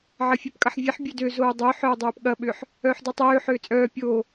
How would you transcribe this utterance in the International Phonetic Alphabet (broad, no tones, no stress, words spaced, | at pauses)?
ʕɐfʲepkʼɐħvʲeħ bʲødø zoːdˤø ħœːdˤøːpɠɐ ɓʏħ | œːħdɐtˤøː ħøːt͡sʼœː pʲoː